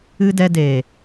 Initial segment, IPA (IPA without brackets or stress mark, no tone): ɨ